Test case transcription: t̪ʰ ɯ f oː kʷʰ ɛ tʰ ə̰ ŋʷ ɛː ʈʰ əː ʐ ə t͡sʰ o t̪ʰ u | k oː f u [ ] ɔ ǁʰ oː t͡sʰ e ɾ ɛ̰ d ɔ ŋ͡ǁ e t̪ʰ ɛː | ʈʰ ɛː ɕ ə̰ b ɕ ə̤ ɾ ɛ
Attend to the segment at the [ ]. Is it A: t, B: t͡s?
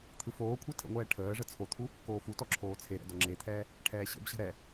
A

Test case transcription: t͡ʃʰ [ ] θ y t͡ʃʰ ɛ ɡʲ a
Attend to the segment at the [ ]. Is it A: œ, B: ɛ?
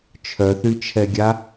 A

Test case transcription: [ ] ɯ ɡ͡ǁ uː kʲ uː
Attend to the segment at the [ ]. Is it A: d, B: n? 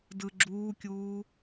A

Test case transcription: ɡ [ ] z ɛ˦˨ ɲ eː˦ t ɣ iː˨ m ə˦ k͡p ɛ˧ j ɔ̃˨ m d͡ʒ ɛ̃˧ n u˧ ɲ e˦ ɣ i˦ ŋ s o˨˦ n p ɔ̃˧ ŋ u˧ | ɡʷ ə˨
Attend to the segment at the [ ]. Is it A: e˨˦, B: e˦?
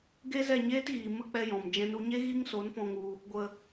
B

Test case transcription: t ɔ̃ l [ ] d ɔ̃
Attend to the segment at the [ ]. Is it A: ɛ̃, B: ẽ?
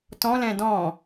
A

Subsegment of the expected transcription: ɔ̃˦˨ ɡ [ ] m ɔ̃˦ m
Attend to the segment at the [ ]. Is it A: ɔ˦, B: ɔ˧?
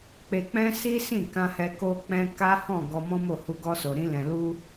B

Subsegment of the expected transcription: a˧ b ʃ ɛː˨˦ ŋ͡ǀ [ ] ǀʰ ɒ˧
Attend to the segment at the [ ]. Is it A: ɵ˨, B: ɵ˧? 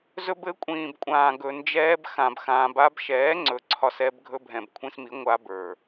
A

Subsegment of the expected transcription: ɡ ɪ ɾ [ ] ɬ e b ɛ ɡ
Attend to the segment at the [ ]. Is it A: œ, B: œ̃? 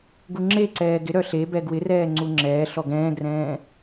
A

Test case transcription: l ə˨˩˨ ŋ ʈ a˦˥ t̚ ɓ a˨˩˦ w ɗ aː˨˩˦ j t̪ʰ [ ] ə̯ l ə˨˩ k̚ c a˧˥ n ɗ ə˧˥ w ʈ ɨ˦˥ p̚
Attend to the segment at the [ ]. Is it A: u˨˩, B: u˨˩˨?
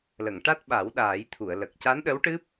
B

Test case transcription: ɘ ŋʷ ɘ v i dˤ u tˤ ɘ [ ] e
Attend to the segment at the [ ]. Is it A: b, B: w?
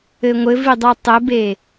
A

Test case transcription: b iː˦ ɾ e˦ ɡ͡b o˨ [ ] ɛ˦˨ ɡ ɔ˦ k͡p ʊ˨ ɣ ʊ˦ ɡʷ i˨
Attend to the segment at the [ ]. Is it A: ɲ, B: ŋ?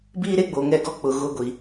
B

